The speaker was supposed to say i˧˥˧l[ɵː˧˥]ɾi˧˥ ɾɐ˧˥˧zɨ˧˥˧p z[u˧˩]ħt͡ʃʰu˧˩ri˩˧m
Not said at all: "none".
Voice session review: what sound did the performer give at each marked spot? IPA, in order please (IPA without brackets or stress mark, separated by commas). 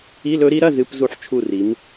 ɵ˧˥, u˧˩